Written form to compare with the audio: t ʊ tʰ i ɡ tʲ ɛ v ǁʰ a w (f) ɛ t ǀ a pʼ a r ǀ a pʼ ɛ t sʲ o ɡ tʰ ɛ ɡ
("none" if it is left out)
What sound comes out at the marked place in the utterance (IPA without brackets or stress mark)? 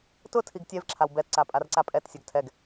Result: b